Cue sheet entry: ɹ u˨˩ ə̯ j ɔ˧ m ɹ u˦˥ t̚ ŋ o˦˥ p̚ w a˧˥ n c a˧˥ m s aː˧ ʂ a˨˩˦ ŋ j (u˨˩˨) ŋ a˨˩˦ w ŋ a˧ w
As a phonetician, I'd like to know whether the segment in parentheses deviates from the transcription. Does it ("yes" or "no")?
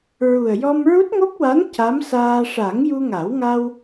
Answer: yes